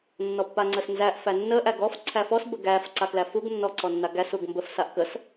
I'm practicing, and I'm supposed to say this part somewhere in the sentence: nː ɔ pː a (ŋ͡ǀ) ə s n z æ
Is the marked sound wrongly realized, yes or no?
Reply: no